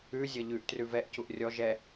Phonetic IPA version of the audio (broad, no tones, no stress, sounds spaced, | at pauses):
ʉ zʲ ʌ ʎ ʉ ʔ t r ʉ v ɛ ʔ c u ʔ rʲ ɔ ʒ ɛ